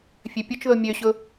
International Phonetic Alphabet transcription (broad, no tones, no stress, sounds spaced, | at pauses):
fʲ ø pʲ ʊ t͡ʃ ð o mʲ ø ɕ ʊ